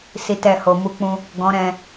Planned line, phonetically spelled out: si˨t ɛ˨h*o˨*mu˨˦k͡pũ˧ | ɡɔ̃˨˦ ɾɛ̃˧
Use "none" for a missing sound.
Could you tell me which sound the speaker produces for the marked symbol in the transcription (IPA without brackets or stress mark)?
o˨